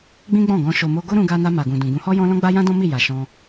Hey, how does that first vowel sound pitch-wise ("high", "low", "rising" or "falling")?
high